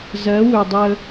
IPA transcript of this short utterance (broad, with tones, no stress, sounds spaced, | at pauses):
z ɜ˨˦ w ɵ˨ dˤ ə˦